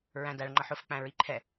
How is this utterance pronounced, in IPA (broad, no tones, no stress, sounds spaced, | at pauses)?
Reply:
ɹ æ̃ d æ ɭ ŋ͡ǃ ʌ ħ ʊ f k͡p æ̃ ɹ i ǃʰ ɛ